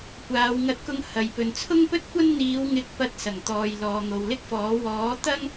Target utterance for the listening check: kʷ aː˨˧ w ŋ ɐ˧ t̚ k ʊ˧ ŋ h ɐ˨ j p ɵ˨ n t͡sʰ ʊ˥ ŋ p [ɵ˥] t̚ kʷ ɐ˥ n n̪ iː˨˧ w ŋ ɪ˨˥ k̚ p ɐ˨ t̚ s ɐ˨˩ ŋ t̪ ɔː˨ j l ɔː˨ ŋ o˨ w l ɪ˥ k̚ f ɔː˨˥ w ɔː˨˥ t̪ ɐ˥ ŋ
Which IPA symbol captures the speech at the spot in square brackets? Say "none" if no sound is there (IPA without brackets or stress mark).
ɵ˥